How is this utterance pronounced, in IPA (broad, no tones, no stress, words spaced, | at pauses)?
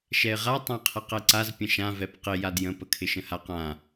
ʃɛɪ̯ʁa tˤãqʰɛqɛǀaz pʲə̃ʃã vɛpqɪ jadjə̃ pəkʰɪʃə̃haq ã